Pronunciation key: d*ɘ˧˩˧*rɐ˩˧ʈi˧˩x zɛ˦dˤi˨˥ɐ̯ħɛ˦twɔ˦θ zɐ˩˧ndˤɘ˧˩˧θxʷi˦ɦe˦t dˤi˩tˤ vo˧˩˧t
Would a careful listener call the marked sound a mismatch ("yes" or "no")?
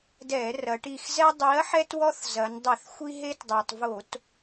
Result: yes